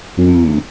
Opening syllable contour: low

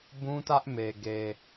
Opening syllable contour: high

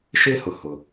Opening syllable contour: high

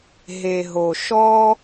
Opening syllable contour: low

